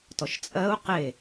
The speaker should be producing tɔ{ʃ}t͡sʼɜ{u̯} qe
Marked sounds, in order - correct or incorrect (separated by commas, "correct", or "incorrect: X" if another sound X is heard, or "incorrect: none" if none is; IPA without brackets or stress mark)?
correct, correct